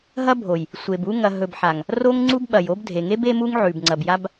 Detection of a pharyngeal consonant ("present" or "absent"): present